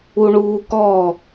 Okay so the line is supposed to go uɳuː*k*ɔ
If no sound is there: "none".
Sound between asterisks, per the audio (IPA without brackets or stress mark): k